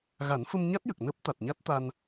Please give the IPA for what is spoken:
ɣa˨˩˦nfə˧mɲa˦˥t̚jə˨˩k̚ nəː˦˥p̚t̪a˨˩t̚ɲa˦˥t̚t̪a˧n

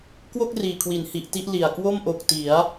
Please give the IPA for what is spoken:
kwo˥˩k̚ riː˨˩kʰwi˩˦n hi˨˩ʔti˥˩ʔ li˨˩a̯ kwo˥˩mʔo˨˩k̚ ti˩˦a̯

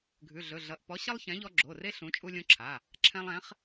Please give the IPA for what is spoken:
ɡʱʉ˩˧˩ɮɵ˩˧˩ ɮʌ˩˧˩ʔ pɔ˨˥ ɕʌ˦lˠ çɛ̃˨˥ʎɔ˦ ɡ͡ǁo˩˧˩re˦ ɬũ˨˥ t͡ʃʼu˦lʲõ˦ǁʰa˩˧˩ | ǁʰɛ̃˦lˠɛ̃˨˥χ

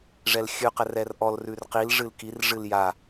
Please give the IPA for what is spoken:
ʐɛlxʲʉqɛr ɛrʔɔlrʉr qil ʐɨlkirʐɨl ja

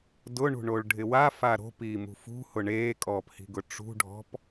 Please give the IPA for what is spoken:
dʊɳṳɳoɭɖʱɪ wafa ɾo̤piːmṳ fṳhʊ ɳeːkʼɔːphi̤ɡʊ ʈ͡ʂṳɖʱɔ̤p

